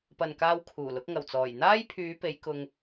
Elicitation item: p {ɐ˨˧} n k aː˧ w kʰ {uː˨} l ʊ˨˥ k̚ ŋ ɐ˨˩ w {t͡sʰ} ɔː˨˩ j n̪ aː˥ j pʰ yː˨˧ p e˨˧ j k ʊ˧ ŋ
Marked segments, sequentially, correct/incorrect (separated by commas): incorrect, incorrect, incorrect